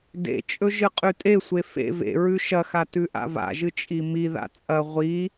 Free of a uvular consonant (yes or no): no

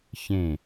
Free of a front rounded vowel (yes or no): yes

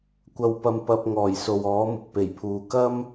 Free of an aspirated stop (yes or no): no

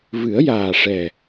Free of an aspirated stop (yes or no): yes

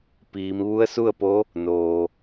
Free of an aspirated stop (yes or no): yes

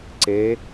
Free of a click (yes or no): no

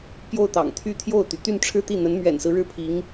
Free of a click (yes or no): yes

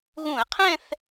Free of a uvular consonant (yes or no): no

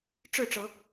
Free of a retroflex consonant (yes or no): no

